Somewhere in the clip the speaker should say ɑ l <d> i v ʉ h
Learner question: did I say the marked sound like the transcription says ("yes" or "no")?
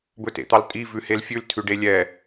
no